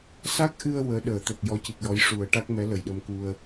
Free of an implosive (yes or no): no